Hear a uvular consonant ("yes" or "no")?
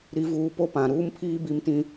no